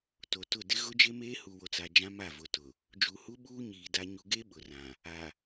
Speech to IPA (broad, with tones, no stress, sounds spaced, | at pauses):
t o˨ t ʊ˦˨ d ɪ˦ ɣ ʊ˦ d͡ʒ e˦ m eː˦ h u˨ w o˨ t͡s a˨ d͡ʒ ã˦ m a˦˨ v ʊ˨ t ʊ˨ | d͡ʒ u˨ h u˦ ɓ uː˦ ɲ iː˨ d a˦ ɲ u˦ ɡ e˦ ɓ ʊ˨ r ã˨ | a˨